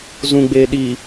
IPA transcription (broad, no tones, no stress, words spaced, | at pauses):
zũɡ͡beː ɗi